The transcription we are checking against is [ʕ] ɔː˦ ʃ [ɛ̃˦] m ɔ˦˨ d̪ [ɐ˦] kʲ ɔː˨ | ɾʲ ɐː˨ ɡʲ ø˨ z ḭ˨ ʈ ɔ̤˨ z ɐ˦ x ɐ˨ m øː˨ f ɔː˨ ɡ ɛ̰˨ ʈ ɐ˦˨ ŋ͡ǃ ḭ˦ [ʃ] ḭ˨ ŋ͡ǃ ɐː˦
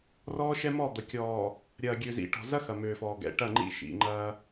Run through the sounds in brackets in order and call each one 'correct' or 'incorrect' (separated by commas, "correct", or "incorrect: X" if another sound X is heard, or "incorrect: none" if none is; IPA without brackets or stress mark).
incorrect: r, incorrect: ɛ˦, incorrect: ɐ˨, correct